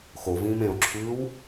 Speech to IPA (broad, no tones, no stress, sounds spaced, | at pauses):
x o v ĩː m ẽ o̯ ǁʰ ʉː w